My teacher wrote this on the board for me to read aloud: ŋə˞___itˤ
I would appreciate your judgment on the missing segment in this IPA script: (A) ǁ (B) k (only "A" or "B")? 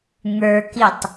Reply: B